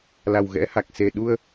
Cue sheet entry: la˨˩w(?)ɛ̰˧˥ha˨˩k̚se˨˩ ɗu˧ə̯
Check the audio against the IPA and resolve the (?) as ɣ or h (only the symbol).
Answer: ɣ